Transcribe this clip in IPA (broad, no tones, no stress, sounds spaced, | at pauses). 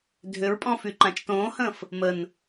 dʱ ʏ ɹ pʼ ɔ̃ f y ǃ ã t͡ʃ t õː h ə̃ː f | m ə n